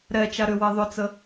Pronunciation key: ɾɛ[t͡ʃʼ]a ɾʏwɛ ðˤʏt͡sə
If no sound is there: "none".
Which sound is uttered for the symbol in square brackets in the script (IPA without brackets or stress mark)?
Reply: t͡ʃ